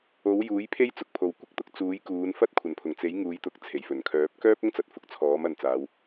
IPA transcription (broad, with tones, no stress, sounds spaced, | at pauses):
o˨˥ w j uː˨˥ j pʰ e˥ j t͡s ʊ˨˥ k̚ pʰ o˨ w kʷ ɪ˥ k̚ t̪ ʊ˧ k̚ t͡s uː˨˥ j k uː˨˧ n f ɐ˥ t̚ kʷʰ ɐ˨˩ n pʰ ʊ˨˩ ŋ t͡s e˨˥ j ŋ uː˨˧ j t̪ ʊ˨˥ k̚ t͡sʰ e˨˩ j f ɵ˨˩ n kʰ œː˨˥ p̚ k œː˥ p̚ ʊ˥ ŋ t͡s ɐ˨ t̚ f ʊ˨ k̚ t͡sʰ ɔː˨˥ m ɐ˨ n t͡s aː˨˧ w